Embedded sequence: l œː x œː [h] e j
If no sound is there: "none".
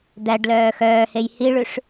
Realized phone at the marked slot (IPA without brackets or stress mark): h